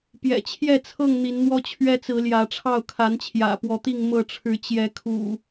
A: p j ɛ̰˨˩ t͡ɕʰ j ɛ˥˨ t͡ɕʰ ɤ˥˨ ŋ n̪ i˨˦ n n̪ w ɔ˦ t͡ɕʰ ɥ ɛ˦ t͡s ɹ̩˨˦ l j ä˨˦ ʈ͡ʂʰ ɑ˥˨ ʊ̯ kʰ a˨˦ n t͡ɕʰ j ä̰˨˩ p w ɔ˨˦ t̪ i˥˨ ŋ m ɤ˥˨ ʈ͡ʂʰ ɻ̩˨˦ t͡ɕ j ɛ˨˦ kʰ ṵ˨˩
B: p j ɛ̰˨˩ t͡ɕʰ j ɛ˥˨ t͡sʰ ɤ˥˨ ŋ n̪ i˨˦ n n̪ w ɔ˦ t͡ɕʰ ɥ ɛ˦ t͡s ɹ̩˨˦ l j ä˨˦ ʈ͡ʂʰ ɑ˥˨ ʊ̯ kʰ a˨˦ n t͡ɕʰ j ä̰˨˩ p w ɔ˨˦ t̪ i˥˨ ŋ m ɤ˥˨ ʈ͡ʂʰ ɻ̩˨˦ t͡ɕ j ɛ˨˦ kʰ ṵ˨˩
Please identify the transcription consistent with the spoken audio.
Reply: B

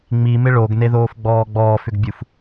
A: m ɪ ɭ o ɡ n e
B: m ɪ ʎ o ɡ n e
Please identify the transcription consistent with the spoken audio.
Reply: A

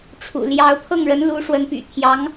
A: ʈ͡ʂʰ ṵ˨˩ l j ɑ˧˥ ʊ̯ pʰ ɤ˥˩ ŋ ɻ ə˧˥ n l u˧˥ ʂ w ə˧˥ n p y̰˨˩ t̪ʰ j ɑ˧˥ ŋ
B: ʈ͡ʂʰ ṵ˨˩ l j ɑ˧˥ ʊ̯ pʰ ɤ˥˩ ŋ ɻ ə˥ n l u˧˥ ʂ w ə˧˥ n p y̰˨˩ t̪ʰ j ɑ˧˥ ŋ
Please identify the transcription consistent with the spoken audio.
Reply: A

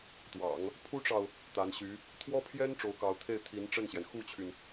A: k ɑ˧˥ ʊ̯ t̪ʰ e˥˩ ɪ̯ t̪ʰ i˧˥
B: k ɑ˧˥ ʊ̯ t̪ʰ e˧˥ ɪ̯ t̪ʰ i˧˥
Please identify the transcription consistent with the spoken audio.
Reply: A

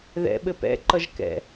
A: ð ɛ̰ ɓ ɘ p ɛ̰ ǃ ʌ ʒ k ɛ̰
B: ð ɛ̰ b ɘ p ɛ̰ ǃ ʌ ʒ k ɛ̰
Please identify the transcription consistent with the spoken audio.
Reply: A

